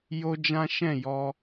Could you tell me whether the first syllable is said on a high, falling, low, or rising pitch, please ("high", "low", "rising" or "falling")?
high